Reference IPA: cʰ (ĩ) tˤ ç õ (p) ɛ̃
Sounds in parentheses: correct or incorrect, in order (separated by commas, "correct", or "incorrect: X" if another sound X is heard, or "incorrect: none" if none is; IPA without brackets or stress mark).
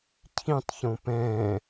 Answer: correct, correct